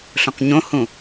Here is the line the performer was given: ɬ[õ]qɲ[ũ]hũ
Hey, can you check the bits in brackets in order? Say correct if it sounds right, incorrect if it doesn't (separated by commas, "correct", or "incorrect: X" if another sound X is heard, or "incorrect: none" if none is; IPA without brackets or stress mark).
correct, incorrect: õ